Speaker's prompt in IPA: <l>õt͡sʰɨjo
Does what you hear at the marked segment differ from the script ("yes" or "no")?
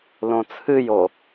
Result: no